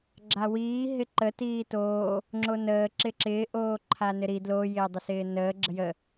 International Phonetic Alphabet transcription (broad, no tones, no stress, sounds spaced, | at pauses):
ɡ͡ǁ a w iː ɦ ɪ ǃ ə t iː t oː | ŋ͡ǁ o n əː ǁ ɪ ǁ ɪː ʔ oː ǃʰ a n ɪ ɾ i d l o j ɪː dˤ ə s ɪː n əː ɡ͡ǁ ə j ə